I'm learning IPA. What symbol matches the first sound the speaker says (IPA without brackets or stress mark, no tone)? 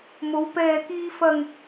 m